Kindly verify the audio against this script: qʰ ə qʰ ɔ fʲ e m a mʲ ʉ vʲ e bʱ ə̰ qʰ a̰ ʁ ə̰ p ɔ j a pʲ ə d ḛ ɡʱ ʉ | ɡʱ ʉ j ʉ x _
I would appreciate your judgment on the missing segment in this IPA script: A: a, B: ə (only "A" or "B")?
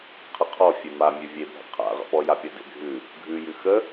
B